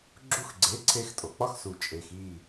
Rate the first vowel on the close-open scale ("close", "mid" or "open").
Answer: close